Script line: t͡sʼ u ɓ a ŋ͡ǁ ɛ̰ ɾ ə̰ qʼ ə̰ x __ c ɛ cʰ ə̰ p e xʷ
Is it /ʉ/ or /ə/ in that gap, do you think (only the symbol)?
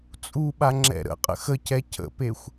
ə